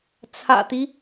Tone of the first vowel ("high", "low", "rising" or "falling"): low